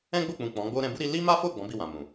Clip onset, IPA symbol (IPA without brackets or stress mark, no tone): ɛ̃